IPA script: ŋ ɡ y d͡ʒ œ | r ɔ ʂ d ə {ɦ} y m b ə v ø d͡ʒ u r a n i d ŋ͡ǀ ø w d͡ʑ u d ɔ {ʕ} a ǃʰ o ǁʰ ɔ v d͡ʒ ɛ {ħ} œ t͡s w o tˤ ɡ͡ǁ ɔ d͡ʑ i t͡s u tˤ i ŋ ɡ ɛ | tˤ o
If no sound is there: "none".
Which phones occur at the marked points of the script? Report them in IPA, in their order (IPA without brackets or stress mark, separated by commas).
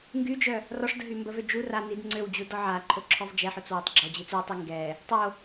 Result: ɦ, ʕ, ħ